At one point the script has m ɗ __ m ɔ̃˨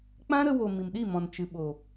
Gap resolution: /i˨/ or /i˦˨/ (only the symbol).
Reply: i˦˨